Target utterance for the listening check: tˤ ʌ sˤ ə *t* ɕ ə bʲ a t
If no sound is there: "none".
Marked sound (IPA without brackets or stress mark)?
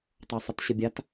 t